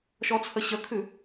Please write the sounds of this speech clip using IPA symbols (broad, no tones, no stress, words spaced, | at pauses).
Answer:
ʃɔt͡sʰəɕəkʰʉ